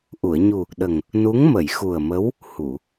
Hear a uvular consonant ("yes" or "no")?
no